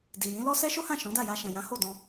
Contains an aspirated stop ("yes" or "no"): no